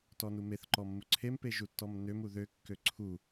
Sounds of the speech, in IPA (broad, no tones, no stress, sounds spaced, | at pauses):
t ɔ n u m e θ ǃ ɔ mː u ǀʰ e m p e ʒ u tː ɔ m n ø m u ð ø kː ø ǀʰ u